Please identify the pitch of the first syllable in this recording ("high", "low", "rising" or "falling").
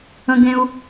high